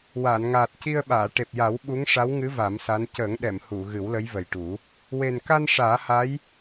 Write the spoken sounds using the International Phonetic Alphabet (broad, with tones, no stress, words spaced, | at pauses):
waː˨˩˨nŋaː˨˩t̚ci˧ə̯ɓaː˨˩˨ ʈe˨˩p̚ja˨˩˦w ɓu˧˥ŋʂa˧˥wŋɨ˧˥ va˨˩˦msa˧˥n cəː˨˩˦ŋɗɛ˨˩˨m hu˨˩˨ ɣɨ˨˩˦wlə˧˥jvə˨˩jʈu˨˩˦ | we˨˩nka˧n ʂaː˨˩˦ha˧˥j